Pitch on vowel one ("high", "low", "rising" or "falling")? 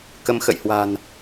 rising